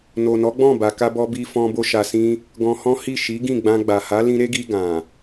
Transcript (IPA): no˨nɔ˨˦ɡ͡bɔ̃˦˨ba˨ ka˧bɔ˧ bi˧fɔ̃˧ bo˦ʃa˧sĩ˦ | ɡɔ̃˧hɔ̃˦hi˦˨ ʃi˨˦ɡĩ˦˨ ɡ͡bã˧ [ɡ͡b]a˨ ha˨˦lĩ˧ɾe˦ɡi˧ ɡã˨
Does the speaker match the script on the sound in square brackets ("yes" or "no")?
yes